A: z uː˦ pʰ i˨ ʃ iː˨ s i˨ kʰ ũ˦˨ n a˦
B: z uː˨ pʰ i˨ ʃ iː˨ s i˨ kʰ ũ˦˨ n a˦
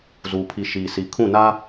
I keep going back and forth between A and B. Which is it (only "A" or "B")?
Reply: B